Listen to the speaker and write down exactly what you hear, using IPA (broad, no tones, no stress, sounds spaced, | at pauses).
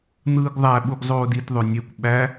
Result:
n̪ ɯː ɡ ðˤ æ ɓ u ɡ zˤ oː d i t ðˤ ø nʲ e kʷ ɓ æ